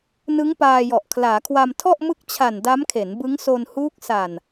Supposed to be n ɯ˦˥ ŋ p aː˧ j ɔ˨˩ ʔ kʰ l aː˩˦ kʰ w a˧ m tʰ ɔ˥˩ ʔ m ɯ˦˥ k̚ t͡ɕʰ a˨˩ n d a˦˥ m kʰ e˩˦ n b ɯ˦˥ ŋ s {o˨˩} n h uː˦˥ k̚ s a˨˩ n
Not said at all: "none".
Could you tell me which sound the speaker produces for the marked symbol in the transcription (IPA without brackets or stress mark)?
o˧